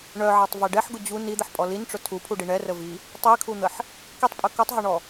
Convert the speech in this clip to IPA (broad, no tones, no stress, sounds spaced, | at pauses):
ɳ œ ʕ a tˤ v ɛ ɖ ɛ ħ ɡ ʊ d͡ʑ u n i d̪ ə ħ pʼ ɔ l i n ʈ͡ʂ ʊ tʰ u pʰ u ɖ i ɳ ɛ r ə v i | tˤ i kʰ u n̪ ə ħ | k i tˤ pʼ œ k u tˤ ɦ ɔ ɳ ɔ